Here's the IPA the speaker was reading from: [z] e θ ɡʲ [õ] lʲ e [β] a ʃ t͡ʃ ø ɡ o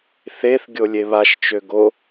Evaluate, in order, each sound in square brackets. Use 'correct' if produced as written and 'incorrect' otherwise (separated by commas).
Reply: incorrect, incorrect, correct